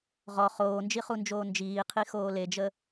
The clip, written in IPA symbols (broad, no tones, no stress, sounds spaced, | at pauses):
ʁ ɔ χ oː n d͡ʒ i χ u n d͡ʒ oː n d͡ʒ iː qʰ i x oː l e d͡ʒ ə